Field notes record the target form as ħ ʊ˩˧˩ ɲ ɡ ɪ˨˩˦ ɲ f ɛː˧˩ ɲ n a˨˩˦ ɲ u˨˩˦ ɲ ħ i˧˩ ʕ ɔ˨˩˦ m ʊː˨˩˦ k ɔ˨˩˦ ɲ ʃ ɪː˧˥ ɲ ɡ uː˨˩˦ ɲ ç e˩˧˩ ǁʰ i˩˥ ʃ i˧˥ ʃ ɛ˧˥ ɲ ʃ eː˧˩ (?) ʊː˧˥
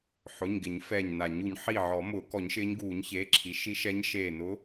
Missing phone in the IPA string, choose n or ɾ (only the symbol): n